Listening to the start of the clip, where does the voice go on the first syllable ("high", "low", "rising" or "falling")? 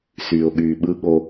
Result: low